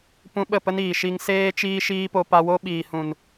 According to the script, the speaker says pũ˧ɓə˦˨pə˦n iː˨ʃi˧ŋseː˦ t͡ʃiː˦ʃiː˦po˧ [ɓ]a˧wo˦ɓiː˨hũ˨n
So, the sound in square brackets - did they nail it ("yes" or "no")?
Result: no